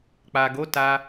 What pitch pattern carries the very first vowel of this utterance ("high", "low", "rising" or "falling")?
low